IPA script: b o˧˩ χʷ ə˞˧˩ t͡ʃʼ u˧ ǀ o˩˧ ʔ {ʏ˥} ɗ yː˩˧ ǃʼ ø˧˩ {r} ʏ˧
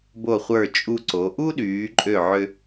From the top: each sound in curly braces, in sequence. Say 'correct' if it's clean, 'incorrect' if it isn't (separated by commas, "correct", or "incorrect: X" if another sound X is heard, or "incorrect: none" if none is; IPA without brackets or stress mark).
incorrect: u˥, incorrect: ʕ